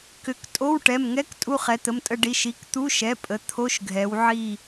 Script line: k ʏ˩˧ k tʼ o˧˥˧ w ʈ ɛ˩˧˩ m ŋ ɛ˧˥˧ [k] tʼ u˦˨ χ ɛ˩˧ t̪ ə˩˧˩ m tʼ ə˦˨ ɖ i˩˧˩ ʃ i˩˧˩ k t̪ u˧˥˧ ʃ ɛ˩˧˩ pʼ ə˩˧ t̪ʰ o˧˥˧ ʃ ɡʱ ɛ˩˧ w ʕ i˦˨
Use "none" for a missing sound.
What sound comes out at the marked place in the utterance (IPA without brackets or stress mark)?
k